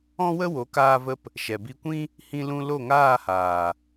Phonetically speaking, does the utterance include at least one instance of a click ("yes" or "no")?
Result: no